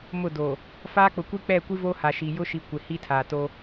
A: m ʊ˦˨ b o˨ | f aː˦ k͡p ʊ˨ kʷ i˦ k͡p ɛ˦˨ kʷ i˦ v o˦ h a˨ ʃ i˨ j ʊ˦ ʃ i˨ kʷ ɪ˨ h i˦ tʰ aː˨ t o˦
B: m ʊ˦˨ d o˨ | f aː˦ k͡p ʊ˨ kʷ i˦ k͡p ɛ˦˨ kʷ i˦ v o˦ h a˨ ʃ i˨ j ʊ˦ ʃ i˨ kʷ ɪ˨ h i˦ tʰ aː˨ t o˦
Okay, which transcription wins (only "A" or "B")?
B